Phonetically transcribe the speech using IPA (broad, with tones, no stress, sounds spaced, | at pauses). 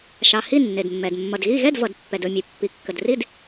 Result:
ʃ ɑ˩ h i˥˨ nː e˩ d mː ɛ˩ d mː ʌ˩ d ɣ i˥˨ ɣ ɛ˥˨ d v ʌ˩ d pː ɛ˩ d ɵ˥˨ mʲ e˩ pː i˩ kː ə˩ d r i˥˨ d